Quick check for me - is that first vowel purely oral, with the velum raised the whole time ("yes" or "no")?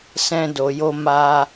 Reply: no